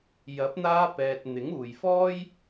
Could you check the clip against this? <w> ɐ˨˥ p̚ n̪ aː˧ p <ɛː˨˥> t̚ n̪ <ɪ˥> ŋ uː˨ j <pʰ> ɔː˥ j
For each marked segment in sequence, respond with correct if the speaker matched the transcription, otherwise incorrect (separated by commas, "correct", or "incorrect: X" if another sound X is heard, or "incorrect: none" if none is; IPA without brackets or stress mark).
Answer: incorrect: j, incorrect: ɛː˨, incorrect: ɪ˨˥, incorrect: f